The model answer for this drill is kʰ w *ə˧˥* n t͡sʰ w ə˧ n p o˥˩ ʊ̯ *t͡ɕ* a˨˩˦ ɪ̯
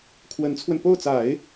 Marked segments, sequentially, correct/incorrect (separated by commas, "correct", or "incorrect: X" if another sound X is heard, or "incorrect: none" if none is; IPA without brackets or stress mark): correct, incorrect: t͡s